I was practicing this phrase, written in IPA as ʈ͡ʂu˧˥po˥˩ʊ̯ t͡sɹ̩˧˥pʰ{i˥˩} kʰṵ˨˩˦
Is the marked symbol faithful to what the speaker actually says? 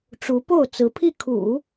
yes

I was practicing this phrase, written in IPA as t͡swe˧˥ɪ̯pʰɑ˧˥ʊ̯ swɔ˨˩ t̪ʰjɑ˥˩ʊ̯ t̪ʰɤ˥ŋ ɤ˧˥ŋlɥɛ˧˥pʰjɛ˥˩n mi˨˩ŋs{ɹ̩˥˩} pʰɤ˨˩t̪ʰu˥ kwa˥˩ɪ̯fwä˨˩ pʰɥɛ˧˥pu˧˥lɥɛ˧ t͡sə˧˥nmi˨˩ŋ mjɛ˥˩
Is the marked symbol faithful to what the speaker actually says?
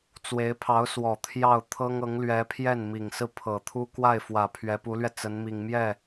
yes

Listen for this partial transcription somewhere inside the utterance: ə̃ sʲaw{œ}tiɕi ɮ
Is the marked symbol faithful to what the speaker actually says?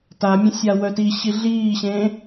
yes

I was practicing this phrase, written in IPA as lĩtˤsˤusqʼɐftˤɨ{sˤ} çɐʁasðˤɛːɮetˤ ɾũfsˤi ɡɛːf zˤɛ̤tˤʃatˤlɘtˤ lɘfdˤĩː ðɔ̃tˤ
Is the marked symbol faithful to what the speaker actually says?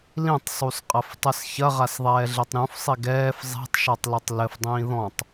no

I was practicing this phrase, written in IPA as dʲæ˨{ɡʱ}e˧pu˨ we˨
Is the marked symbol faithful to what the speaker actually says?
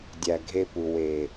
yes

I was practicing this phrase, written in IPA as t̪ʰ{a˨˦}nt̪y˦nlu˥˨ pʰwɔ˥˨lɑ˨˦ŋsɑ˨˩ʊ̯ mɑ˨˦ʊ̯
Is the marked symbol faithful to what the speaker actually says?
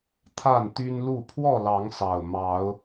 no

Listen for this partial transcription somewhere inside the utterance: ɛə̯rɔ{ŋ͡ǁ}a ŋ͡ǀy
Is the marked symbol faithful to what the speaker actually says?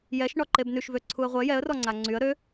no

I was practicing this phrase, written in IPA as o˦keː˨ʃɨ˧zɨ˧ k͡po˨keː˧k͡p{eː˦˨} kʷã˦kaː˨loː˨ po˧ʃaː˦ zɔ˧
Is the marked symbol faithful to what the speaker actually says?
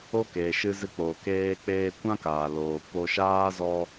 no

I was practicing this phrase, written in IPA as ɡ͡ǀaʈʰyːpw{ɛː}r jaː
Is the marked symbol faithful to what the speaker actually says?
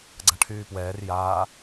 yes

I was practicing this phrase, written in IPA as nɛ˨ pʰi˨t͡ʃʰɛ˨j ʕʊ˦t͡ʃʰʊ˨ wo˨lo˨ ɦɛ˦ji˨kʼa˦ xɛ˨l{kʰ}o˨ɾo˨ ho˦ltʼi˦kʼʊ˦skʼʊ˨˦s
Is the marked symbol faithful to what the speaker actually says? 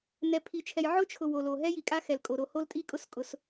no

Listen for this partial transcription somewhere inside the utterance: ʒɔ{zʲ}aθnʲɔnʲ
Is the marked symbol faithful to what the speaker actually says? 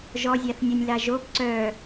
yes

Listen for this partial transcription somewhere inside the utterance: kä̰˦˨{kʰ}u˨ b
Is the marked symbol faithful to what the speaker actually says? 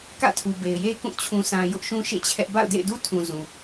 no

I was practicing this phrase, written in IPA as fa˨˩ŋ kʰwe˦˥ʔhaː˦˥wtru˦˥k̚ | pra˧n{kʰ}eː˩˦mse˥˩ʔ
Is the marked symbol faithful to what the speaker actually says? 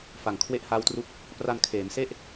yes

